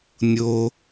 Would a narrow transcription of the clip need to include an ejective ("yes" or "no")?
no